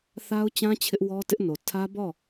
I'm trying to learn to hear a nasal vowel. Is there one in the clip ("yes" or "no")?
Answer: yes